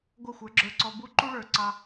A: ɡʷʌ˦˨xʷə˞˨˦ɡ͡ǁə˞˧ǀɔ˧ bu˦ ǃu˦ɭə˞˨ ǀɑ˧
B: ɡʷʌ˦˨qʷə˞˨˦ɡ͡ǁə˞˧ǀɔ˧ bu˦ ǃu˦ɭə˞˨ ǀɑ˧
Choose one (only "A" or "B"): A